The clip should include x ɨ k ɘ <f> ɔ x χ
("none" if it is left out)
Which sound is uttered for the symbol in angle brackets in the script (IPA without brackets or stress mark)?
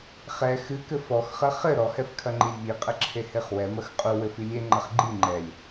f